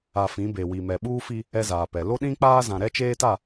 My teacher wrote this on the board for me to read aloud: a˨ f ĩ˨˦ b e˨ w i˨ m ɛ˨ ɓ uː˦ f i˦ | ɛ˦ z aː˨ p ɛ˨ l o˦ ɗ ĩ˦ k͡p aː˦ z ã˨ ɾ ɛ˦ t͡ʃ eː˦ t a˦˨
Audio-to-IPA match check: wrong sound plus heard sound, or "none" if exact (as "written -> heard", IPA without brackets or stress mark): none